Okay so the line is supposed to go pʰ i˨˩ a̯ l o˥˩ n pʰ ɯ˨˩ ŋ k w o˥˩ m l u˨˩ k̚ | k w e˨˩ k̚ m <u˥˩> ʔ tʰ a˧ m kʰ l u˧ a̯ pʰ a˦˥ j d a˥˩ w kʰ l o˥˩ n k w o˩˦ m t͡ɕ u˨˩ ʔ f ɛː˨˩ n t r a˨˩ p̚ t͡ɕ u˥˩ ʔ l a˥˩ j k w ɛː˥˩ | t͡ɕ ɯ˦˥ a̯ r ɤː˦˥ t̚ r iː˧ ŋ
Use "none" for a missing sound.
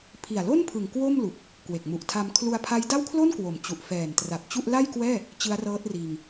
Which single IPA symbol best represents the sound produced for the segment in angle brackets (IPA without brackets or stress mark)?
u˨˩